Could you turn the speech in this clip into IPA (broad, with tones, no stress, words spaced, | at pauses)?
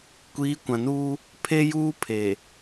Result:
kʷiː˨˦kʷã˨nuː˦ | pʰe˦juː˦pʰe˨